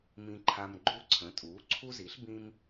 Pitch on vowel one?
high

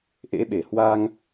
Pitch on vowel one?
rising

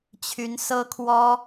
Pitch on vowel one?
rising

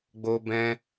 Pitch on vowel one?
high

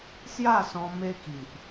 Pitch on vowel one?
falling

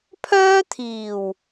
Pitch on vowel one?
high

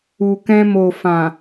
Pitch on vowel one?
low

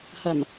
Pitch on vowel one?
low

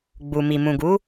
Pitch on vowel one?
low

